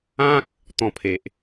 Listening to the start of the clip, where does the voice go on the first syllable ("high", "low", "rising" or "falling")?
high